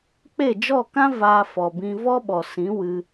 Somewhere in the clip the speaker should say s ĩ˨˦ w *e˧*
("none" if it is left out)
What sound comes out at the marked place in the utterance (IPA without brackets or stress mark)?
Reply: ɨ˧